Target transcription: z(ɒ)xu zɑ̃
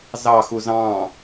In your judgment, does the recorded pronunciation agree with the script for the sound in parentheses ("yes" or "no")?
no